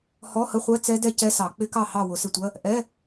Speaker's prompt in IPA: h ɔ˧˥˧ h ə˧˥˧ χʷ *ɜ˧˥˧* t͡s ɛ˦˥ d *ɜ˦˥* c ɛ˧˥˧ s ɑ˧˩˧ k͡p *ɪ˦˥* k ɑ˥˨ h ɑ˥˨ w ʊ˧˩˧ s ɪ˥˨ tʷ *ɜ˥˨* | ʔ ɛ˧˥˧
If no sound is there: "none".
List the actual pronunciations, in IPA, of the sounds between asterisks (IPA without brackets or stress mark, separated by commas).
ɜ˧˥˧, ɛ˦˥, ɪ˦˥, ɜ˧˥˧